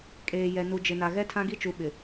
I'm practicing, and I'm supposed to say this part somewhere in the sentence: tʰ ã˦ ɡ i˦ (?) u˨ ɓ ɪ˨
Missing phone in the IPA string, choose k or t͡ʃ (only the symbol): t͡ʃ